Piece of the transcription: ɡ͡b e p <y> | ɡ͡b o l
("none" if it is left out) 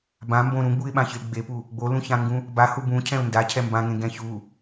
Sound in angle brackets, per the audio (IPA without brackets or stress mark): u